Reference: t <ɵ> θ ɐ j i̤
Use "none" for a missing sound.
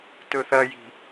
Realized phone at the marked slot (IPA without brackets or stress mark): ɵ